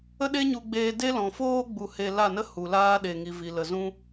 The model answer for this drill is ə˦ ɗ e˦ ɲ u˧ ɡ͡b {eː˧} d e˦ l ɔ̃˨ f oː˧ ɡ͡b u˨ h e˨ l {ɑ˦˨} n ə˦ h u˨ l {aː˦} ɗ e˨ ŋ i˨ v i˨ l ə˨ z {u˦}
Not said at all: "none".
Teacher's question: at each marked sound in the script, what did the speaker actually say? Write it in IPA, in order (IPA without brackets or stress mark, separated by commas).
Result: eː˧, a˦˨, aː˦, ũ˦